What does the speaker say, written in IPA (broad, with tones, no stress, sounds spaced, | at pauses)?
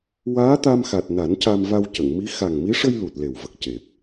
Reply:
w aː˧˥ t̪ a˧ m x a˨˩ t̚ n a˨˩˦ n c a˧ m v a˧ w c ə˨˩˨ ŋ m i˧˥ x a˨˩ ŋ m i˧˥ ʂ ə˧ j l u˨˩ t̚ l e˨˩ w v ə˨˩ k̚ c e˨˩ p̚